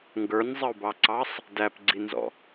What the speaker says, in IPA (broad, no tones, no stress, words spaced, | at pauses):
ŋɡə˞nʲzˤəu̯bɑǀɑsˤ | dæpɡ͡ǀinzɔ̰